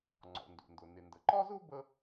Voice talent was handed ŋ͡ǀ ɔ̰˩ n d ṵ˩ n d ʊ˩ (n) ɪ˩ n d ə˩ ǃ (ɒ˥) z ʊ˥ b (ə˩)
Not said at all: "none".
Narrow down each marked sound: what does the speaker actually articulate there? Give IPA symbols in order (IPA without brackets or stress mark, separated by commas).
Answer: n, ɒ˥, ə˥